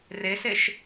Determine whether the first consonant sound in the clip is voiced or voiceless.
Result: voiced